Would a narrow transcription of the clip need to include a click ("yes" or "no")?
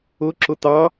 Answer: yes